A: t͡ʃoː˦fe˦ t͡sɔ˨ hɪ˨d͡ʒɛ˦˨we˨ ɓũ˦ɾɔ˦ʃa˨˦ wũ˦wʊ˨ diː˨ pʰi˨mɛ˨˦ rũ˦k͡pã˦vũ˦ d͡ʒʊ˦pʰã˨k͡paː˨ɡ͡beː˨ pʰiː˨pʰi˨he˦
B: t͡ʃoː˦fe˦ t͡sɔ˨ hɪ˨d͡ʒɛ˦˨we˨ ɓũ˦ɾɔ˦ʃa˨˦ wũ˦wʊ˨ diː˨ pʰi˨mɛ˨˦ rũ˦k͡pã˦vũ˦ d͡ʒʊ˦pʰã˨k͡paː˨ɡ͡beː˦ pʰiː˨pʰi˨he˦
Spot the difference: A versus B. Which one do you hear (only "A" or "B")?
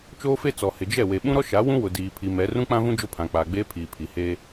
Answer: B